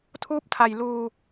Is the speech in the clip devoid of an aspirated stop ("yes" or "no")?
no